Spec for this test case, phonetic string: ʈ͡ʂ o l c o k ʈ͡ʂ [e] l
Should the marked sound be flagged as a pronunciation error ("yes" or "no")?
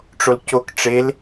no